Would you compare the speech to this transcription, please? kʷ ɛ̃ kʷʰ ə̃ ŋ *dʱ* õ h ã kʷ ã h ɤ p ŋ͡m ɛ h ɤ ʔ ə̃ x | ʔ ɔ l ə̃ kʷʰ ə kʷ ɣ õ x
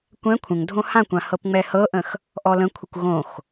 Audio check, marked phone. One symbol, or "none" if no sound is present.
dʱ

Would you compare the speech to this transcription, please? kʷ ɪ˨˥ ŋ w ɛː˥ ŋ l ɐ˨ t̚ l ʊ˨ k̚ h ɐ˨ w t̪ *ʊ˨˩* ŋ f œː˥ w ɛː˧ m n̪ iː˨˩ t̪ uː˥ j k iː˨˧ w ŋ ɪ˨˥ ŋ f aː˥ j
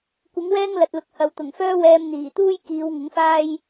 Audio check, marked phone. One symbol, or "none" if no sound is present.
ʊ˨˩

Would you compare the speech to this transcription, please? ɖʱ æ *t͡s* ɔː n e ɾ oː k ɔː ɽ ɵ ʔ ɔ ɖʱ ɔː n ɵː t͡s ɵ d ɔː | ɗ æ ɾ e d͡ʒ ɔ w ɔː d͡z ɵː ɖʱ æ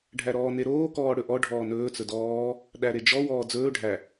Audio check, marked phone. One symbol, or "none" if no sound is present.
ɾ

